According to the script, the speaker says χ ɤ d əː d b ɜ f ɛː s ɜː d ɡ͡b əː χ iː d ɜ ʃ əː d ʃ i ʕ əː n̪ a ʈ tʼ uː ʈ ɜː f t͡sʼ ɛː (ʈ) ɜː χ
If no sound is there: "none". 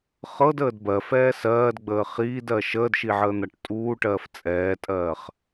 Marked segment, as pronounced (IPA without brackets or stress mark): tʼ